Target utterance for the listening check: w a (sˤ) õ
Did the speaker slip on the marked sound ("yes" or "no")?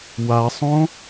no